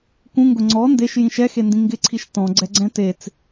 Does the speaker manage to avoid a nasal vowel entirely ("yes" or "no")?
no